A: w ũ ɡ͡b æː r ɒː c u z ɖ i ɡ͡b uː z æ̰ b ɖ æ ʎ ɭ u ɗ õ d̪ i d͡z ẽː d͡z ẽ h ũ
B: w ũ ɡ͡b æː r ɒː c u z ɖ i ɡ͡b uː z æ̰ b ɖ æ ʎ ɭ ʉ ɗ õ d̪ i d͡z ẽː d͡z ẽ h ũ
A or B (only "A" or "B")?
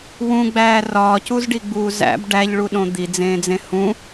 A